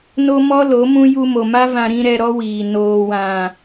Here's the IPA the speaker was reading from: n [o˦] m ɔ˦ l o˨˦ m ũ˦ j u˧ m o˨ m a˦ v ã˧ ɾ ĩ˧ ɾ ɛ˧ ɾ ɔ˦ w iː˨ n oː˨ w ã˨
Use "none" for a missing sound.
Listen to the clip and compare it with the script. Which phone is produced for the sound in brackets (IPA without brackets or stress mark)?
o˦